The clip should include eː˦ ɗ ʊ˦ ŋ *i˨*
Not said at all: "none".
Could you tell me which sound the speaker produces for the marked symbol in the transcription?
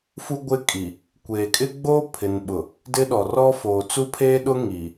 i˨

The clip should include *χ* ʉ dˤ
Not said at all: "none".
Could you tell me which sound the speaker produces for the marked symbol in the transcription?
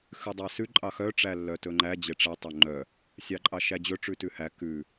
x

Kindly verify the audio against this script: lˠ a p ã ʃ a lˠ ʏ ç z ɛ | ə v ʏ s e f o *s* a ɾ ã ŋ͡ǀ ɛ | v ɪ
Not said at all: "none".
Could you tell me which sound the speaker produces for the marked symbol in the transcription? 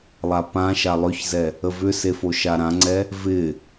ʃ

